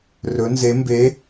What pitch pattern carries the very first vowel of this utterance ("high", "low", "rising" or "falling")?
rising